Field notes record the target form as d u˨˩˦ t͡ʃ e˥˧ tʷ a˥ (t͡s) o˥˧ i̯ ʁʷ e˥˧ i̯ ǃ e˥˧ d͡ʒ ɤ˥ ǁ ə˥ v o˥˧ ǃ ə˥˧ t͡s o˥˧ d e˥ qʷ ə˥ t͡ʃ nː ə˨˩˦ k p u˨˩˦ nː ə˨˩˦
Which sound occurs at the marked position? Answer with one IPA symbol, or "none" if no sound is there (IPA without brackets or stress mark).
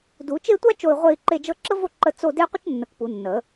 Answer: t͡ʃ